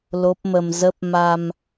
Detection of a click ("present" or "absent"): absent